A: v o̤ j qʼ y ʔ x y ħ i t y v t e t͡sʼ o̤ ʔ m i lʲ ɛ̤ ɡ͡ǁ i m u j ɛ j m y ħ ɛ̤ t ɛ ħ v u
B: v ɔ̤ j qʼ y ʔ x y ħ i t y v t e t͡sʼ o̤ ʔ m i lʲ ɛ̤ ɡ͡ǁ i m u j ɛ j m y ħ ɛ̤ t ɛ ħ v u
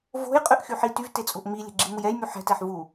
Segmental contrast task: A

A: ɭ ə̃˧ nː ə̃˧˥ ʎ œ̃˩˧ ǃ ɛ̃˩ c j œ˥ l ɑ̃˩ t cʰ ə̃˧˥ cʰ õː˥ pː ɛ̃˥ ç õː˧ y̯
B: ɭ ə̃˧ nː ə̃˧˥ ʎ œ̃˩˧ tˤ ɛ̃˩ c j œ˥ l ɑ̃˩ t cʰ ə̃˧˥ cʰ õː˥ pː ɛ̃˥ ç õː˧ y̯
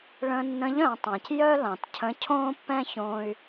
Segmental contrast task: B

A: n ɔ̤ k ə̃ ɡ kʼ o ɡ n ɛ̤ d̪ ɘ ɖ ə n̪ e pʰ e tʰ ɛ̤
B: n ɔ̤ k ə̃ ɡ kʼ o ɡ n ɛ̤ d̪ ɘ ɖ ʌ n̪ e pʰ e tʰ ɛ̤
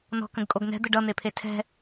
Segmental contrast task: B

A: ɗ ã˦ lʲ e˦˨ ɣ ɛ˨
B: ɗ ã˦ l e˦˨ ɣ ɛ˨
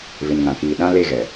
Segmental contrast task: B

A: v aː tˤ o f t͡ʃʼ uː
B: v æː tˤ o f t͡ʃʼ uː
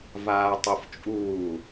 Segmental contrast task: A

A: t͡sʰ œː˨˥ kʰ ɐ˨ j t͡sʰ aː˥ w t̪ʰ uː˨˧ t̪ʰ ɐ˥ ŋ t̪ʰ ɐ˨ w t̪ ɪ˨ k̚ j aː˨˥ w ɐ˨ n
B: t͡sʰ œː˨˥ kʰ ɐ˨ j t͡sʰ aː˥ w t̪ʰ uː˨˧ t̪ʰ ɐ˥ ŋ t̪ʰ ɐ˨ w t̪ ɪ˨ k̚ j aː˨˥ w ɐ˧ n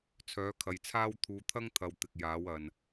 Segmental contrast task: A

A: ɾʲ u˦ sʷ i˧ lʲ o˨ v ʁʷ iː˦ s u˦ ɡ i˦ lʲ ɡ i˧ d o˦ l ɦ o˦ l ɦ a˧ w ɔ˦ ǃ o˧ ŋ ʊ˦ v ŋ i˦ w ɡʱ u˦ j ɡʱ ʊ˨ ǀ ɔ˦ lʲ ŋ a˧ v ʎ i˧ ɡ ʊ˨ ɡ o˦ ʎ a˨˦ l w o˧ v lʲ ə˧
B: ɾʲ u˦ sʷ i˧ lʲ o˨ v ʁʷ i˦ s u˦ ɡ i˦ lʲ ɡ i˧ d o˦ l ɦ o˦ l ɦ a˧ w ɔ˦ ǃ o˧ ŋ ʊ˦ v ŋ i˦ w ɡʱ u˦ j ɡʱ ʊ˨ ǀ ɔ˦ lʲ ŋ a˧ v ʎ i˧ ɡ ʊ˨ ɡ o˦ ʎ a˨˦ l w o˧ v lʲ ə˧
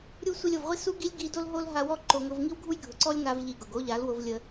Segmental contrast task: B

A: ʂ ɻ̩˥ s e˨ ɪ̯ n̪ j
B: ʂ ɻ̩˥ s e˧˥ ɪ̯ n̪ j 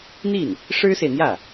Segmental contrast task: A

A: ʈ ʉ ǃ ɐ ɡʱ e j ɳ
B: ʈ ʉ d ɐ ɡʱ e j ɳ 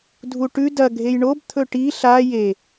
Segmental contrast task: B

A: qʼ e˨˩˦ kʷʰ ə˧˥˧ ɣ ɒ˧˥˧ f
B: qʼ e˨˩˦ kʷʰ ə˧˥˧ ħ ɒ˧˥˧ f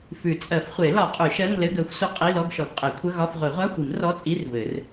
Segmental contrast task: A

